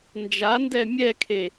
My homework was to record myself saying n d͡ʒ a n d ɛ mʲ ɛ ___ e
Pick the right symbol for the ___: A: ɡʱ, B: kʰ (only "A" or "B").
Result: B